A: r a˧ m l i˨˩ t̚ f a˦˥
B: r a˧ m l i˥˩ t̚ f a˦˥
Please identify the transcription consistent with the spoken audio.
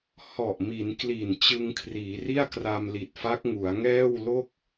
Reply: A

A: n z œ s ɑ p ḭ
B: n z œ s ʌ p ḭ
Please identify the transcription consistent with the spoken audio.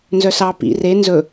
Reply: A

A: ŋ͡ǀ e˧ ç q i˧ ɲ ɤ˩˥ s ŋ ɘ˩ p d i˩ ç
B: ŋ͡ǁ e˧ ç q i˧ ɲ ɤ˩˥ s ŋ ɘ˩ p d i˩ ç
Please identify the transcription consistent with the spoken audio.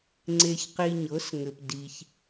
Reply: A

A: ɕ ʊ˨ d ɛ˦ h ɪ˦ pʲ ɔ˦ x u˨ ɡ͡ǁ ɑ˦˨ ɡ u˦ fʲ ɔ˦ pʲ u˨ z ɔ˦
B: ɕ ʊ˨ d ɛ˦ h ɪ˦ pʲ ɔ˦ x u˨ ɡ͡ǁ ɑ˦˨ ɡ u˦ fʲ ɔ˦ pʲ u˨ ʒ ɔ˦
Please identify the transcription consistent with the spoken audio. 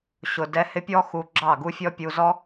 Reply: A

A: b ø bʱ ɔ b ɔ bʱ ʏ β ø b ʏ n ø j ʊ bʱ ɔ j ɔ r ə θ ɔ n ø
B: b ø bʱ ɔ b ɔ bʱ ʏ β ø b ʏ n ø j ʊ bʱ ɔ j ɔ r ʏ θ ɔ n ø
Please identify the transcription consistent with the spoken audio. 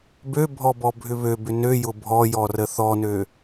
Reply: A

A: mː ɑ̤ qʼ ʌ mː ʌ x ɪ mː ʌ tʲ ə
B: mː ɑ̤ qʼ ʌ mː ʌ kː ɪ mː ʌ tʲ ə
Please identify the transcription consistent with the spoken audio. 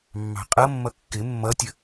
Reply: B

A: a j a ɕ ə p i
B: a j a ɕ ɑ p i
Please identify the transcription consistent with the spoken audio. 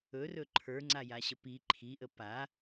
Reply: A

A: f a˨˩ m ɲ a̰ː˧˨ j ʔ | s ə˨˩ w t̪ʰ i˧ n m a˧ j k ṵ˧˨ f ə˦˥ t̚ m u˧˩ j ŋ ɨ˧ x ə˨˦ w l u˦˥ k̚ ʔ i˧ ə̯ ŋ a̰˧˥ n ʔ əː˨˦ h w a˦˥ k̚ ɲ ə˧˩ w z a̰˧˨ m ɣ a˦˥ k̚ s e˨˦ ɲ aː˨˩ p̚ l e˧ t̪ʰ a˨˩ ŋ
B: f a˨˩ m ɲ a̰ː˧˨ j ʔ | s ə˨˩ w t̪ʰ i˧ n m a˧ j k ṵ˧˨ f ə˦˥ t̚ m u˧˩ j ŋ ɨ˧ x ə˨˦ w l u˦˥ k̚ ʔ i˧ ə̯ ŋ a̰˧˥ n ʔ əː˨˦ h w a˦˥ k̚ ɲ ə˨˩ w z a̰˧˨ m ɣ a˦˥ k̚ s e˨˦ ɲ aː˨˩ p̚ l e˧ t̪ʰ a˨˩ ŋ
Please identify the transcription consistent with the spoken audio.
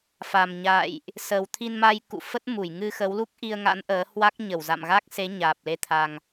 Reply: A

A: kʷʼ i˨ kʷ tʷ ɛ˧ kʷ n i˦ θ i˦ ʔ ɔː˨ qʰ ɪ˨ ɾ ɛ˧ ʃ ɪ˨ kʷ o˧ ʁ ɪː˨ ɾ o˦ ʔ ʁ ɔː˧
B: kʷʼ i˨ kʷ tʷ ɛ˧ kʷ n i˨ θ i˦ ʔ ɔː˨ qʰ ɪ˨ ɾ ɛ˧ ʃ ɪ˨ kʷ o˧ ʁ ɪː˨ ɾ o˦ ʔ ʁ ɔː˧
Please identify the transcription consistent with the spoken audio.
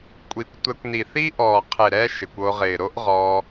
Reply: B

